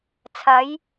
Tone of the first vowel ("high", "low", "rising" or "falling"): rising